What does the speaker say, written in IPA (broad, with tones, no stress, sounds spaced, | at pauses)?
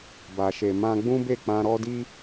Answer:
b a˨ ʃ e˨ m ã˧ ɡ͡b ũ˦ b e˦˨ k͡p ã˧ ɾ ɔ˦ d i˦